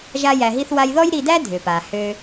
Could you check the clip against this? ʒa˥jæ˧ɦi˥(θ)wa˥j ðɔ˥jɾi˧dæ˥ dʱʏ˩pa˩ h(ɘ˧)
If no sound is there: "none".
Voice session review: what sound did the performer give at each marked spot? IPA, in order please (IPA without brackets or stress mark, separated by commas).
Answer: θ, ø˧